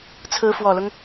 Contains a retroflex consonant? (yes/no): no